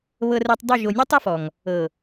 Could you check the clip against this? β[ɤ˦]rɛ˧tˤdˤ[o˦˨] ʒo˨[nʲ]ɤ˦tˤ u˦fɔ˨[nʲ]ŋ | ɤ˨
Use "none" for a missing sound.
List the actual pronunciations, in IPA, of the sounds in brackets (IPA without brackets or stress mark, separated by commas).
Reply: ɤ˧, o˦˨, nʲ, none